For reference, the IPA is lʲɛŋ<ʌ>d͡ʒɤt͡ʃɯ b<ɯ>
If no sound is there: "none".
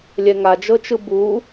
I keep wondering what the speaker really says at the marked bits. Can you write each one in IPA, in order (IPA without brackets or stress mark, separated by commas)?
a, u